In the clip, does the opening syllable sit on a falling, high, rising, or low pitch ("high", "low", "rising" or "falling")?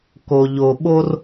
low